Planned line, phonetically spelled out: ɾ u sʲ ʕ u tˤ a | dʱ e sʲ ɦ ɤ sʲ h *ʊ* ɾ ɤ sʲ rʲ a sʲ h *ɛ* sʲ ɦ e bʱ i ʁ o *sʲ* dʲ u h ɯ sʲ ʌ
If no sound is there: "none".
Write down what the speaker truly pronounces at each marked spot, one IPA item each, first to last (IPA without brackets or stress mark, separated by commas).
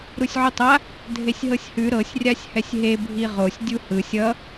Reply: ʉ, ɛ, sʲ